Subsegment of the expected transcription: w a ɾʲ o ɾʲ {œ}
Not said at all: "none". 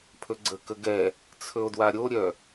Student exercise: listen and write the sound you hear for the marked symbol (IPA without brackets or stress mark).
œ